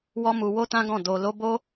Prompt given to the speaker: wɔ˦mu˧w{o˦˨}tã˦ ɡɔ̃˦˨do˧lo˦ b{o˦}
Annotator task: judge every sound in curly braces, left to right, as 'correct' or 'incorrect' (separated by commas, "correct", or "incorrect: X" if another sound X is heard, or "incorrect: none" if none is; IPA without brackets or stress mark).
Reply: incorrect: o˦, correct